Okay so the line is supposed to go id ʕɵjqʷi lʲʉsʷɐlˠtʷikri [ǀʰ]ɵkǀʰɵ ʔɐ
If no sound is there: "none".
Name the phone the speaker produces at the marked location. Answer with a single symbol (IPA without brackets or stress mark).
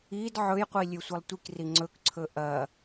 ŋ͡ǀ